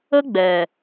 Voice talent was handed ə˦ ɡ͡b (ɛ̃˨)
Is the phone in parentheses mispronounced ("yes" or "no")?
yes